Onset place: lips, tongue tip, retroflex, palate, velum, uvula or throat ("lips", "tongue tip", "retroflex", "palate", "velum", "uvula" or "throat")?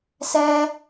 tongue tip